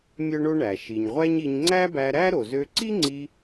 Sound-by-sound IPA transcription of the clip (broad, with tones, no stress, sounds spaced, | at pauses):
mʲ œ˥ ɳ o˥ ɳ æ˩ ʃ i˩ ɲ ʁʷ æ˥ ɲ i˧ ɲ ŋ͡ǀ æ˥ b æ˧ ɾ æ˥ ɾ o˩ z ø˧ ǀ i˥ ŋ͡ǀ i˧